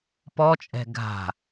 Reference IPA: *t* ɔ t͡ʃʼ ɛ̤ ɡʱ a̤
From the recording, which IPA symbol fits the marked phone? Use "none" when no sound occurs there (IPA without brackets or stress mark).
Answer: p